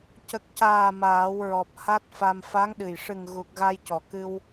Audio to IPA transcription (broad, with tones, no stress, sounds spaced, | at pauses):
c ə˨˩ k̚ c aː˨˩ m aː˨˩˦ w ɹ ɔ˨˩ p̚ h a˦˥ t̚ f a˧ m f a˧˥ ŋ ɗ ɨ˨˩ j ʂ ɨ˨˩ ŋ ɣ u˨˩ k̚ ɣ a˧ j c ɔ˨˩ k ɨ˧ w